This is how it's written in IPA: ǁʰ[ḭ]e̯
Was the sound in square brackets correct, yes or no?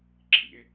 yes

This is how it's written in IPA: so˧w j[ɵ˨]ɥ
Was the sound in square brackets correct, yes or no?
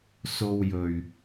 yes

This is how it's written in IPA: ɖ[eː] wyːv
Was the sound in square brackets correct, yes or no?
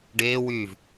yes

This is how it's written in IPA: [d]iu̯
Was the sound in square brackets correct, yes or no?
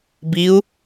no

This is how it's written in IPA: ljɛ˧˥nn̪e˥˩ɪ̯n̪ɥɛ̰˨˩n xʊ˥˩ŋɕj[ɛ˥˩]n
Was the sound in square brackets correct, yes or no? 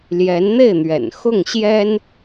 no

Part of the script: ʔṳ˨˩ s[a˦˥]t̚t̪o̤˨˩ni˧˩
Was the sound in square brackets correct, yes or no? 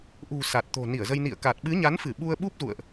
no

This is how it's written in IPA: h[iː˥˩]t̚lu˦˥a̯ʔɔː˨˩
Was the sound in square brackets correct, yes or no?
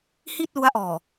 no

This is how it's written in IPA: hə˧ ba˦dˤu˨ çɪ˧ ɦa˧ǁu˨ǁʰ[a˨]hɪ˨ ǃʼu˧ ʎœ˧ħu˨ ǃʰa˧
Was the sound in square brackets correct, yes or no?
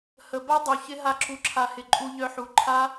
yes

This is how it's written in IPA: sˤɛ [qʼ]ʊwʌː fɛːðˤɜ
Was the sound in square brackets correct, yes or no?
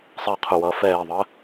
no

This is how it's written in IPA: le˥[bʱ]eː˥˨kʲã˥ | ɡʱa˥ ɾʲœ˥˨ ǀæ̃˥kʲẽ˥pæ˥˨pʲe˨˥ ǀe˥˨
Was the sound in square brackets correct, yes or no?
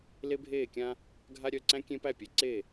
yes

